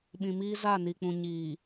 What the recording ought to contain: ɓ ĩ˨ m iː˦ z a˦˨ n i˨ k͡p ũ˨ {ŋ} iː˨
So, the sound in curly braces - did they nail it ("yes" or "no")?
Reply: no